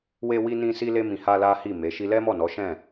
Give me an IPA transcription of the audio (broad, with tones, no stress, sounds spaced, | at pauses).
w e˧ w i˧ n ĩ˧ s i˧ l e˧ m ĩ˨ h a˧ l a˦ h i˦˨ m e˨˦ ʃ i˦ l ɛ˦ m ɔ˦˨ n ɔ˨˦ ʃ ɛ̃˦˨